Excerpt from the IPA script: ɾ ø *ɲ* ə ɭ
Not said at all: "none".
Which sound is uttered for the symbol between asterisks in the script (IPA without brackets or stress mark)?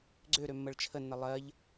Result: mː